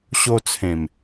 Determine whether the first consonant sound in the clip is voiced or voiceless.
voiceless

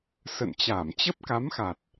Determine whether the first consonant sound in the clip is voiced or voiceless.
voiceless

